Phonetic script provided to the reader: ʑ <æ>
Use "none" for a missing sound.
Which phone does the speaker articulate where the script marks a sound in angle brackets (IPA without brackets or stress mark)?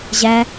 æ